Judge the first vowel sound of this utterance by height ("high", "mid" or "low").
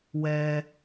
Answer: mid